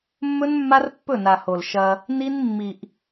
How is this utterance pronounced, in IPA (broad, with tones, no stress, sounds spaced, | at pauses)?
mː ɵ˦ n mː a˦ r pː ɵ˦˨ n a˨ h o˨ l ʃ ɐ˦ | n i˦ n mː i˨ ʔ